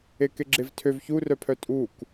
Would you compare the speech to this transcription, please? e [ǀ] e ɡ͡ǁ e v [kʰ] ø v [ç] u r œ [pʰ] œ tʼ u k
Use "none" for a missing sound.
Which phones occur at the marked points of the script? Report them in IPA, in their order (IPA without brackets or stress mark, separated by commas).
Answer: k, tʰ, ç, pʰ